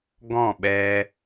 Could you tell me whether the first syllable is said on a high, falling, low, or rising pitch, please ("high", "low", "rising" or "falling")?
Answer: falling